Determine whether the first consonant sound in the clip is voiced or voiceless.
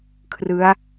voiceless